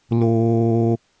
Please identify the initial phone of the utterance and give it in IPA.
l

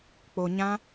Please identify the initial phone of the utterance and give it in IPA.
k͡p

